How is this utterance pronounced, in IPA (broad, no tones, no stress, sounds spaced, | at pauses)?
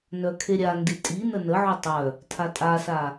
n œ kʰ e ɾʲ a n d i tʼ i n ə n ə ʕ o tˤ œ | tʰ a tʼ a s a